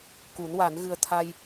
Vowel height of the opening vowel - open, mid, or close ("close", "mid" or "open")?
close